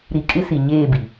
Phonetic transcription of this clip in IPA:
ɾ i˨ kʼ ɪ˦ s i˨ ɲ eː˦˨ b i˨

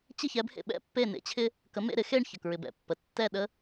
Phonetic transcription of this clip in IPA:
t͡ɕ ɪ˥˩ ç ɛ˩˥ b h ḛ˧ ɓ ɛ̰˥ pː e˥˩ n ḛ˥ t͡ɕʰ ɪ˥ | k ə˩˥ m ḛ˥˩ ɾ ɪ˥ x e˥˩ ɳ ç ə˩ k ɹ ɪ˩ b ɛ̰˩ pː ə˩ tː ɛ˥˩ ɗ ə˥

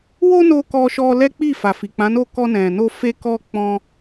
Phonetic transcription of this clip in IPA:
w o˦ n o˧ k ɔ˦ ʃ ɔ˦ l ɛ˦ k͡p i˦˨ f a˨ f i˨ k͡p ã˨˦ n o˦˨ k ɔ˧ n ɛ̃˨ n o˧ f e˦ k ɔ˦ k͡p ɔ̃˦

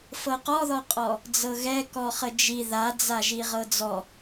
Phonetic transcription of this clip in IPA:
f ɤ q ɔ ð ɔ qʼ ɔ | d͡z ɤ ɣ ɛ k ɔ χ ə d͡ʒ i ð a d͡z a ʒ i ʁ ɤ d͡z ɔ

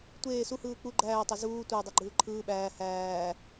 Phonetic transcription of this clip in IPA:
tʷ eː s u h ɯː k͡p u ɡ͡ǃ æː tˤ æ z uː tʷ e dˤ o ɡ͡ǃ ɯː ǃʰ ɯː ɓ æː h æː

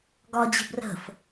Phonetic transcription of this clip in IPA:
ɡ ɒ d͡ʑ ə̤ b r ə̤ f

